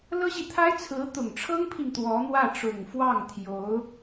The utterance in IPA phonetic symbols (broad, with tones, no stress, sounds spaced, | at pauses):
l ɤ˥ ɕ i˨ t̪ʰ a˥ ɪ̯ t͡sʰ ɹ̩˧˥ t̪ ʊ˨˩ ŋ ʈ͡ʂʰ ɤ˥ ŋ pʰ i˨ ŋ t̪ w ɔ˧˥ n̪ w ä˥˩ ʈ͡ʂ ʊ˨˩ ŋ f w ɑ˥˩ ŋ t̪ʰ j o˧˥ ʊ̯